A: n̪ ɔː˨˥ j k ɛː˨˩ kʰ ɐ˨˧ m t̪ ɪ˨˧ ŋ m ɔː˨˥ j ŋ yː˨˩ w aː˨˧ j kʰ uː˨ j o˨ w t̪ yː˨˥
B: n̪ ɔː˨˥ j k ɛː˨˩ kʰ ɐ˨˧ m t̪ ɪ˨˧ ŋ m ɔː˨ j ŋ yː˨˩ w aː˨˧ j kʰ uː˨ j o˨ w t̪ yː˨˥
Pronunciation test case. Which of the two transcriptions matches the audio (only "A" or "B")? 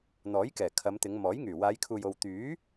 A